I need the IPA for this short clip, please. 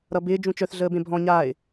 ɾʌbɪː d͡ʒũt͡ʃœθ ɮəːbẽbʱɔ̃ ɲaːɪ̯

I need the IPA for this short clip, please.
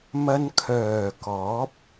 mɐ˧nkʰœː˨˩ kɔː˨˥p̚

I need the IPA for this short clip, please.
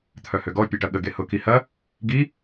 t̪ʰœhøɡɔ pʲeʈɐɠə ɡehʊ kihɐ | ɡi

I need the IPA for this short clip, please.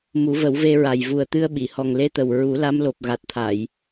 mu˨˩˦və˨˩˦wve˧ɹa˨˩j vu˨˩ə̯t̪ɨ˧ə̯ɓi˨˩˨hɔ˨˩ŋ le˧t̪ə˨˩w ɹu˨˩˦ la˧˥mlo˨˩p̚ ɣa˨˩t̚t̪ʰa˨˩˨j

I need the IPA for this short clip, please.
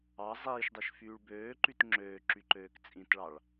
ɑ zˤiːʃdˤeʃ fyːɭbøːǃyt ŋ͡ǁøːǁy ǃøːkt͡sʼĩtɭɑɭ

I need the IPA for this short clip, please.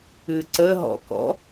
ɨǀəɦɔ̰kɔ̰

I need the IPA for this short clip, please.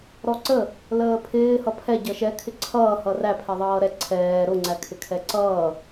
ɾɔǀə | ləːpʰɪː hʌpʰɛ ɟʌʃɛ kʰɪǀʰʌː hʌræ pʰɛðˤʌːɾɛ ǀʰɛː ɾʊ ŋ͡ǀækʰɪkʰɛǀʌː

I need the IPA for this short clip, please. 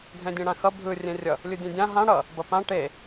ɡʱɛ̃dʲẽɽãxʌ bʱɯ rʲɛ̃rʲʌ | lʲɯdʲẽdʲã ɦã ɽʌ | bʌpã ʈe

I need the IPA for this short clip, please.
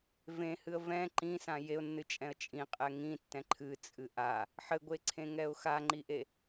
vẽhɨə̯ vɛ̃ ǃĩsã jeʊ̯nːɨt͡ʃʼɛ̃ə̯ t͡ʃʼĩqʼɛ ŋĩtːɛ̃ ǃʰɨt͡sʼɨ ʔa | ħɘɡʷeǀʰẽŋɛʊ̯ xaŋ͡ǃiʔe

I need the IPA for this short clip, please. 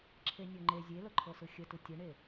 ǁʰenʲɤŋ͡ǃe zʲelɤǃʰɤsɯ xʲətɯ tʲəɳe

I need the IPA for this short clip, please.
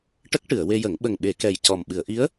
ʈə˦˥k̚ʈɨ˨˩˨ə̯we˧jə˨˩˦ŋ ɓə˨˩ŋɓe˨˩˨kɛ˨˩j cɔ˨˩mɓɨ˨˩˨ə̯ʔi˧˥ə̯

